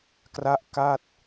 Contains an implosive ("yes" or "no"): no